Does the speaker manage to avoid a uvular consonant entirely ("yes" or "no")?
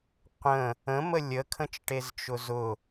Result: no